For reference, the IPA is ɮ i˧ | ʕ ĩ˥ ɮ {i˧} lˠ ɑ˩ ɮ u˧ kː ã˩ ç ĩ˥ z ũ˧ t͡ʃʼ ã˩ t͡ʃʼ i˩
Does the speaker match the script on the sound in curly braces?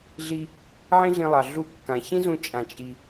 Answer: no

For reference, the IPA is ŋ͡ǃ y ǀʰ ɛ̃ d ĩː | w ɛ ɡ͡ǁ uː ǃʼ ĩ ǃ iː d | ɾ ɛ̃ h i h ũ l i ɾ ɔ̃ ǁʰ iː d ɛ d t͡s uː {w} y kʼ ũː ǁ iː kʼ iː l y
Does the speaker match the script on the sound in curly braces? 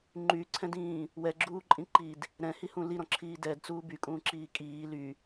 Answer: no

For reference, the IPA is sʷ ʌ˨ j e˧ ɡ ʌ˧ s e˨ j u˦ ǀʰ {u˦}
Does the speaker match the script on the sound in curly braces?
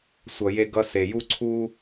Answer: yes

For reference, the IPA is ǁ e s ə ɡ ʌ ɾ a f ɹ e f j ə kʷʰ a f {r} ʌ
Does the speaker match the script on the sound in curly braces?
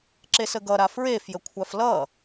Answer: no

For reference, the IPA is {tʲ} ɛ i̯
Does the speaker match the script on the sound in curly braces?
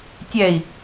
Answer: yes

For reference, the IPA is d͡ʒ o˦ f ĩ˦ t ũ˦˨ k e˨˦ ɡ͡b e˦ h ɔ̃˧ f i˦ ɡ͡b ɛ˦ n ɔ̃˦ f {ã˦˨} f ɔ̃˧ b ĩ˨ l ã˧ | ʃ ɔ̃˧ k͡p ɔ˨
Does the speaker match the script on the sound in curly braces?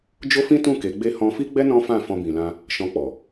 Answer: yes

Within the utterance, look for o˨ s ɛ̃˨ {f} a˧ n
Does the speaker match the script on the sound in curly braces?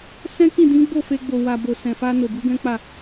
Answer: yes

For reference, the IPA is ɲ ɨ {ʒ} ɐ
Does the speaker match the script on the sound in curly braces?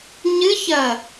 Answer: no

